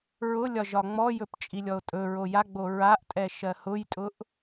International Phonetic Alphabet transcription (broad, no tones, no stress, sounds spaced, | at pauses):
ɹ ʊ lʲ ɒ ʒ ɒ ŋ͡m ɔ j ɵ p t͡ʃʼ i lʲ ɔ o̯ tʼ ɵ ɹ o j a ɡ͡b o ɹ a ʔ tʼ ɛ ʃ ɜ h ʊ j tʼ ʊ ʔ